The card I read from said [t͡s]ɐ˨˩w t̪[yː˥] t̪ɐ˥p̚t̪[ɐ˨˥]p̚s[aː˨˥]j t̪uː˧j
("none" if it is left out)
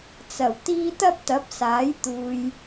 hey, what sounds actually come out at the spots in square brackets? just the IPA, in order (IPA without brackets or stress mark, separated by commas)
t͡s, iː˥, ɐ˨˥, aː˨˥